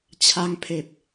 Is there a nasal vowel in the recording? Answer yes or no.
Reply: no